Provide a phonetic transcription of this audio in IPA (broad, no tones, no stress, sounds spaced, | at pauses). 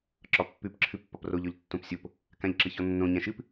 ǁ ɒ pː ʉ p ǁʰ ɨ pː ɒ p r o ʎ ɔ ʎ tː õ p sʲ o p | k ã ʎ ǁ ɨ ç ɔ nː õ ɲ ã ʃ ɨ p